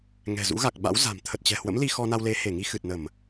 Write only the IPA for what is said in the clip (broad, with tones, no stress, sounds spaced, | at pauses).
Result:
ŋ ɛ̤˨˩ z ṵ˧˥ ɣ a˨˩ k̚ ɓ a̰˧˥ w z a̤˨˩ m t̪ʰ ə˨˩ t̚ t͡ɕ ɛ̤˨˩ h w ə̰˧˥ m l i˧ x ɔ˧ n a˧ w l e˨˦ h e˧˩ ŋ i˧ x ɨ˨˩ t̚ n ə˧˩˨ m